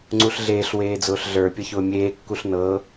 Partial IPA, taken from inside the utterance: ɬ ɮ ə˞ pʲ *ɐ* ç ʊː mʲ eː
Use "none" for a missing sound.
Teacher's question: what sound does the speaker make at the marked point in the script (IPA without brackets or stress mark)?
ɐ